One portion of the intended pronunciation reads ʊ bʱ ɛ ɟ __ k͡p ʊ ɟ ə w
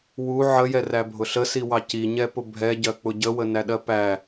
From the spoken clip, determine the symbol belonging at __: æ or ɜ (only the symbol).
ɜ